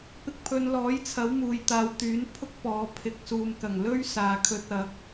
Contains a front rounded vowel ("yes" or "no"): yes